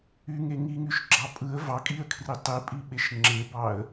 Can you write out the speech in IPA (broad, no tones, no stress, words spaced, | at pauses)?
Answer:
yŋe ŋiŋyʃɡ͡ǁɑ pʼɯə̯ vɑkʼiə̯kʰri tˤipʼiɓeʃ ŋ͡ǁebɑə̯